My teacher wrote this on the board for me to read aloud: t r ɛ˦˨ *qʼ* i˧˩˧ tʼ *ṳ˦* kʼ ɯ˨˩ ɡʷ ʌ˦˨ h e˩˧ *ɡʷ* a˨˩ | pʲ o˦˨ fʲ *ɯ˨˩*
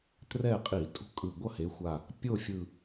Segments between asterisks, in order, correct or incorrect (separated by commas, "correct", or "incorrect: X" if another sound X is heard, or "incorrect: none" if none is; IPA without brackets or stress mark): correct, correct, incorrect: xʷ, correct